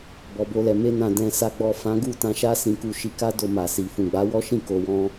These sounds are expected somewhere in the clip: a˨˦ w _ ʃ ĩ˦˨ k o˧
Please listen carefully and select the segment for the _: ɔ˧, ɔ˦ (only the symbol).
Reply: ɔ˦